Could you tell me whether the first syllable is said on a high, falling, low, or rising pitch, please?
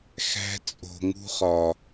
high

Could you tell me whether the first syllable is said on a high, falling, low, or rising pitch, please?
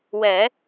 rising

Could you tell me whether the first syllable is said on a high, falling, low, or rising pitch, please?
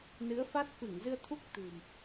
rising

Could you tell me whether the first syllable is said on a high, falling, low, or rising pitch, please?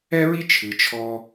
high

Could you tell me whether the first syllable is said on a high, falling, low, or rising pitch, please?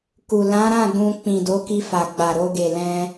low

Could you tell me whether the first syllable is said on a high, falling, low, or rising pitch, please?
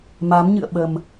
rising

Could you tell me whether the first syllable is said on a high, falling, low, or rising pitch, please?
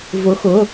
rising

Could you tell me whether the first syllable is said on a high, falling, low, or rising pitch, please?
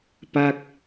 falling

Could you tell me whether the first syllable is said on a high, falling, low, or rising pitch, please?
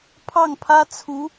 falling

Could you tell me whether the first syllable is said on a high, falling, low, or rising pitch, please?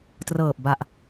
low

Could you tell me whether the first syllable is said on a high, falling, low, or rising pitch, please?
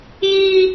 high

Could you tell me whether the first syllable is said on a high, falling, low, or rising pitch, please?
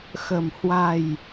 low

